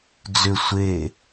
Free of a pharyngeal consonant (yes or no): yes